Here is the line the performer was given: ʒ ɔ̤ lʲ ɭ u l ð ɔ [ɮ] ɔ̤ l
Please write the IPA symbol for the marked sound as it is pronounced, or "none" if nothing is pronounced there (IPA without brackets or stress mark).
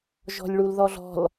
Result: ɮ